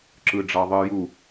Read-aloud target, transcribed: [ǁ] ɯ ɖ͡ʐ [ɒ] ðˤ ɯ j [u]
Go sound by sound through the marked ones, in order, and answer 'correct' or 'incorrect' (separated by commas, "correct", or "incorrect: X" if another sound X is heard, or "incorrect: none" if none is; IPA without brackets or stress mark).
correct, incorrect: ɑ, correct